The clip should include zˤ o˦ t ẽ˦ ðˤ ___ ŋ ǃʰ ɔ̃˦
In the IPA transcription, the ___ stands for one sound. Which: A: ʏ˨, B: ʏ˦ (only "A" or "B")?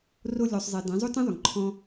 A